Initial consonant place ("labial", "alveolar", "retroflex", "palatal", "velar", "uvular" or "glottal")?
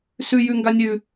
alveolar